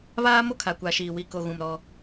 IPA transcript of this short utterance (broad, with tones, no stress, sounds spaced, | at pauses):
β aː˦ m o˦ kʰ a˨ kʷ a˨ ʃ iː˨ w i˨ k o˨ ɣ ũ˨ m ɾ ɔ˦